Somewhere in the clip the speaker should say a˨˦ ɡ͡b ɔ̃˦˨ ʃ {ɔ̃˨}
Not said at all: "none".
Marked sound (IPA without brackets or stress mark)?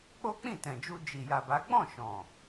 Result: ɔ̃˨